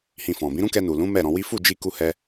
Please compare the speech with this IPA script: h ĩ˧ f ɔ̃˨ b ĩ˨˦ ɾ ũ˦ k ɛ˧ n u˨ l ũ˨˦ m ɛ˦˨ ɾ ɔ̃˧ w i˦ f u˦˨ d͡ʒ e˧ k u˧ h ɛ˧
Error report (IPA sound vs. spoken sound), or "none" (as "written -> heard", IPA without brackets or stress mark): e˧ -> i˧